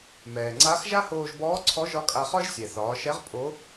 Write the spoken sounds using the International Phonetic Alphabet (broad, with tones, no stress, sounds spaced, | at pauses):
m ɛː˩ ŋ͡ǀ a˧˥ x ʒ a˥ h oː˧ ʒ b ɔː˧˥ ǀʰ ɔ˧˥ ʒ ɒ˧˥ kʼ a˧ χ ɒ˥ ʒ sʲ ɛ˩ θ ɒː˩˧ ʃ ɛ˧˥ ʁ pʼ o˧˥